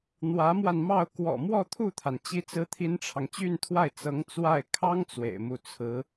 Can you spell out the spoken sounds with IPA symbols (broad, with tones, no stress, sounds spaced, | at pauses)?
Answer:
n̪ w ä˧˥ m w a˧ n m ɑ˥˩ ʊ̯ k w ɔ̰˨˩ m w ɔ˥˧ t̪ʰ u˥˩ t̪ʰ a˩ n t͡ɕ i˥ t͡s ɹ̩˥ t̪ʰ i˥ n ʈ͡ʂʰ ɑ˨ ŋ t͡ɕ y˥˧ n t̪ʰ w a˥˩ ɪ̯ t͡s ɤ˧˥ ŋ t͡s w a˥˩ ɪ̯ kʰ ɑ˥ ŋ t͡s w ḛ˨˩ ɪ̯ m u˥˩ t͡sʰ ɹ̩˧˥